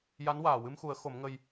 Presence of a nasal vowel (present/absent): absent